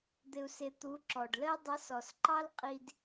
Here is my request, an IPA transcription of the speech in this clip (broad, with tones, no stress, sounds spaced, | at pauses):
d̪ ɪ˨ u̯ s ɪ˨ t̪ u˨˦ ǁ ɔ˨ ɖ l ə˧ i̯ dˤ ʌ˨˦ s ɔ˨ s ǃ ɑ˦ l qʼ i˧ d